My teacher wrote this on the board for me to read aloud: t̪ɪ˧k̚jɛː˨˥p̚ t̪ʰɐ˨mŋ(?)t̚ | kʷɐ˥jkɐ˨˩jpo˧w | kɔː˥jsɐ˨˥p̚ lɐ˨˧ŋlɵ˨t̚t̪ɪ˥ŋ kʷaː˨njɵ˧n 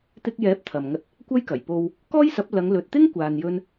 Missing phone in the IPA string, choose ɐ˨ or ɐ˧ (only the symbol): ɐ˧